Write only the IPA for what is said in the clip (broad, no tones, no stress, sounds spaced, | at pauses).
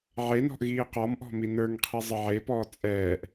ʕ e n ɔ̤ ʔ ɣ iː q ɔ m ʔ ɔ̤ m i n ə˞ ŋ qʰ i zˤ ə ʕ e p ɔː t͡sʼ ɛː ʔ